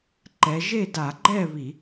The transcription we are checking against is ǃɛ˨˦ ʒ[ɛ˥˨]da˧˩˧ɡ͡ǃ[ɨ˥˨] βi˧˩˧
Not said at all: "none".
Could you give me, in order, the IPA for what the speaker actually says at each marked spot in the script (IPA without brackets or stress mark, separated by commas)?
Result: e˥˨, ɛ˥˨